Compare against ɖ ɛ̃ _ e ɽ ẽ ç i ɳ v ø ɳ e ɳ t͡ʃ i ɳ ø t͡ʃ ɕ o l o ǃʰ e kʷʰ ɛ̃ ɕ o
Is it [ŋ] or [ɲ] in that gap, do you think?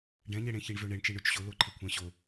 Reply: ɲ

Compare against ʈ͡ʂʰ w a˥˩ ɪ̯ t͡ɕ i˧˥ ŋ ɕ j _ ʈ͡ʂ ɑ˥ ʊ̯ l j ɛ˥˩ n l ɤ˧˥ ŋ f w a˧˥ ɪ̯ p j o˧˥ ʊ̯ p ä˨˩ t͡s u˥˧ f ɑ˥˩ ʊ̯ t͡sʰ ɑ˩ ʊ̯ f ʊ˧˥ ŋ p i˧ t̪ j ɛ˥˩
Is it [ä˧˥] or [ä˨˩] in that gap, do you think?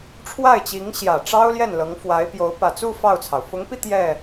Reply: ä˨˩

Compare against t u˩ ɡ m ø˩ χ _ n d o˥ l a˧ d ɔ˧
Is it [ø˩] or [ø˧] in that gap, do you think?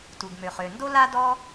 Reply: ø˩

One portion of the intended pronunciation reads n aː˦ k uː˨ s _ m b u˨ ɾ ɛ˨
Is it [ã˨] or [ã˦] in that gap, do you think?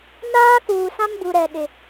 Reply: ã˦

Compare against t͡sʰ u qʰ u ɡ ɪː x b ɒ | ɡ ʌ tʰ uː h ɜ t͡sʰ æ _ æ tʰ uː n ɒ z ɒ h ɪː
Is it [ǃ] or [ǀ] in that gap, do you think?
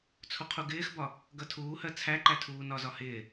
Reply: ǃ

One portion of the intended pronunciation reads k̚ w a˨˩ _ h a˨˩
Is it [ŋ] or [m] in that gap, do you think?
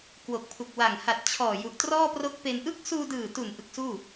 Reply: ŋ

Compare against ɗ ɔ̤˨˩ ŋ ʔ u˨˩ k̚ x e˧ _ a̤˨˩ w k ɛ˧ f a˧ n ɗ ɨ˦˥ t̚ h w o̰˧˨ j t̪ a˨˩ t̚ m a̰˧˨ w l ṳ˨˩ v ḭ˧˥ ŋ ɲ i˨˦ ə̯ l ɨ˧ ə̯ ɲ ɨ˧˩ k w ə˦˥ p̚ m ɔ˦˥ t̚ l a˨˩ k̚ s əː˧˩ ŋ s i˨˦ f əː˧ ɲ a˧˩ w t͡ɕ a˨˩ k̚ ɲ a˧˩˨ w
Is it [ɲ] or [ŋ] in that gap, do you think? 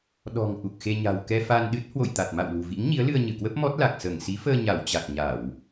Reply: ɲ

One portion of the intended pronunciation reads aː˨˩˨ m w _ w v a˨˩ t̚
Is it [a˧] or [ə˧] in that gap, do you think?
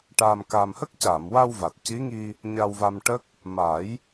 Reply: a˧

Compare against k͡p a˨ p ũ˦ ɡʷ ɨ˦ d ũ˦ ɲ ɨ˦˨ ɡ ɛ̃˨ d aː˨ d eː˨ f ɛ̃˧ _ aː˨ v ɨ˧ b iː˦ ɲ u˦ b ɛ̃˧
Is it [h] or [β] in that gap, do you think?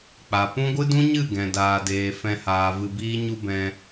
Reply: h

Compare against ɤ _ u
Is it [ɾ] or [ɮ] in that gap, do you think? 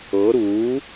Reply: ɾ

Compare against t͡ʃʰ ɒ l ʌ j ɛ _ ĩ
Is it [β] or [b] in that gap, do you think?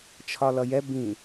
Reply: b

